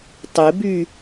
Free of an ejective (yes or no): yes